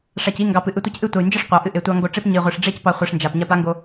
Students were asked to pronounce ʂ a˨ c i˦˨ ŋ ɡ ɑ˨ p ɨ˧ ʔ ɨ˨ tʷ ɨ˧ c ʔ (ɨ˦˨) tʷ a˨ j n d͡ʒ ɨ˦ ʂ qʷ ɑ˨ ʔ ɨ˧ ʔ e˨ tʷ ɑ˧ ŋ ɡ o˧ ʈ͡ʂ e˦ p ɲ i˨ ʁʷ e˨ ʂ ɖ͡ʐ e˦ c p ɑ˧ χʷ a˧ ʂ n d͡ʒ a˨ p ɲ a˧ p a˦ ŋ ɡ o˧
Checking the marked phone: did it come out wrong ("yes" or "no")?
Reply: no